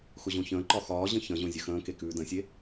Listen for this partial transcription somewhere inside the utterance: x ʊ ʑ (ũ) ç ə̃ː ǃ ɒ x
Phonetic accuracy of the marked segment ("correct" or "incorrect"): incorrect